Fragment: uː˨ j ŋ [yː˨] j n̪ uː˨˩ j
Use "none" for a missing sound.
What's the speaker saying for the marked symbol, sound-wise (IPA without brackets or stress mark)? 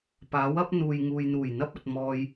uː˨